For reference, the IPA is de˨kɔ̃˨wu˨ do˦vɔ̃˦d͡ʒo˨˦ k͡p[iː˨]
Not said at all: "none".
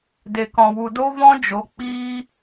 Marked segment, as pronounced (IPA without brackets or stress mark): iː˦